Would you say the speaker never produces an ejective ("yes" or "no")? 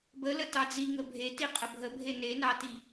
no